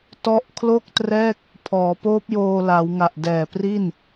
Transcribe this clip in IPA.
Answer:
tɔ˦˥ʔkʰlo˥˩k̚trɛː˥˩k̚ | pʰɔː˩˦poː˦˥p̚joː˧la˩˦w ŋa˨˩ʔdɛː˨˩pri˥˩n

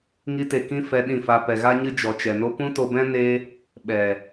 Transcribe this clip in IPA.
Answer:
ŋi˦te˧ kĩ˦ fɛ˧ɗĩ˦˨fa˧ pɛ˨ɣa˦ɲɨ˦ d͡ʒɔ˨t͡ʃɛ˨no˦ pũ˦to˧bɛ̃˦ ne˦ | ɓɛ˨

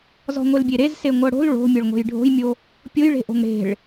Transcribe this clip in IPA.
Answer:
zɔ̤ŋʷelbʲeɾez seŋʷɤɽo̤l ɭo̤mʲɤɭŋʷe̤j ɖʱo̤jmʲo | pʲojɭe̤ʔo̤ŋ ɽe̤ɭ

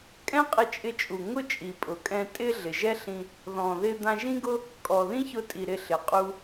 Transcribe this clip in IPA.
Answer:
kʼɛ̃˥qʼɪ˧t͡ʃʼɪ˧t͡ʃʼu˩ ŋʊ˥t͡ʃʼi˩pʼʊ˩kʼɛ̃˧ tʼɪ˥ ɮɪ˩ʒɛ˥ɬĩ˧ | ðɔ̃˩ðɪ˧ d̪ã˧ʒĩ˥ɡʊ˥ | kʼɔ˩ðĩ˥çʊ˧tʼi˩ ɾɪ˧ɬɪ˩ qʼu˧

